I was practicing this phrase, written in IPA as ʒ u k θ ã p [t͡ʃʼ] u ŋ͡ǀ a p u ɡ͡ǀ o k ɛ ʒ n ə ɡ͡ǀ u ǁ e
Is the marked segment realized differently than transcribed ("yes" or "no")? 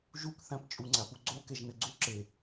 no